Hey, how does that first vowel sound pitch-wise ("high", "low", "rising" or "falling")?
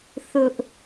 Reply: high